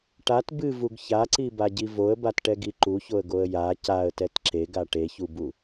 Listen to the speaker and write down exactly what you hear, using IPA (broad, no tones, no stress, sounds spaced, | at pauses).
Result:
ʈ a t b ɨ v u ɡ ç a ǀ i b a ɟ i v o ə̯ b a t ʈ ɛ ɡ i ǃ u ç o ə̯ ɡ o ə̯ j a c a ə̯ t ɛ t ǁ e ɡ a ʈ e ç u b u